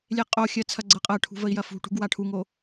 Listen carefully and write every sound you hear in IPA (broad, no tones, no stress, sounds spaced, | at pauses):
lʲ e qʼ o xʲ ɜ t͡sʰ ɐ ɡ͡ǀ ɤ qʼ ɜ ʈʰ ṳ v ə i̯ j ɐ f ṳ ʈ ṳ ɡ w a ʈʰ u ŋ o